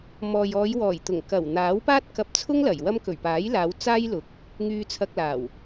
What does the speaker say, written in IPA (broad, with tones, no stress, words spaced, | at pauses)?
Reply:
mɔː˨jɔː˨˧jwɔː˨˩j t̪ʊ˨˩ŋ kɐ˨˩wn̪aː˨˥w paː˥t̚kɐ˧p̚t͡sʰʊ˥ŋ lɐ˨˩jwɐ˥m kɵ˨˩ɥpaː˨˥jlaː˨˧w t͡saː˥jlʊ˨˥k̚ | ŋyː˧t͡sʰɐ˧k̚ laː˨˩w